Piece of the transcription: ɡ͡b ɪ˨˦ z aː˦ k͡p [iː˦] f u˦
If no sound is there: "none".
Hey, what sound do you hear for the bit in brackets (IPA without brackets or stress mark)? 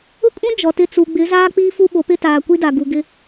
iː˦